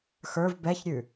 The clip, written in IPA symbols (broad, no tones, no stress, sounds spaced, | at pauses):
x ə˞ v b ɛ ç ɾʲ ʉ